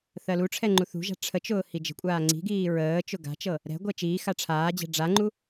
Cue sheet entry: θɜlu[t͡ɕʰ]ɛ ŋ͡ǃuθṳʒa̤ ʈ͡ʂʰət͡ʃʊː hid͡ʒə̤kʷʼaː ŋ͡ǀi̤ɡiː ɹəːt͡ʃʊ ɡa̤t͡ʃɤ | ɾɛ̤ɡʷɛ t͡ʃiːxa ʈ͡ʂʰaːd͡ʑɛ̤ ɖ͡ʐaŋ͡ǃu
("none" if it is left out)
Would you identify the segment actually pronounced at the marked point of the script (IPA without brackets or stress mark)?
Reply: ʈ͡ʂʰ